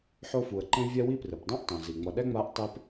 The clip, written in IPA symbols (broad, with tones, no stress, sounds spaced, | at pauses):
ħ o˦ f u˩ ə̯ ǃ ẽ˥ vʲ ɛ˥ w i˦ p r ɯ˩ p dˤ õ˥ ʔ tˤ õ˩ z i˩ ŋ͡m ʌ˨ ɗ ɛ˥ ŋ͡m a˦ ʔ tˤ e˥ p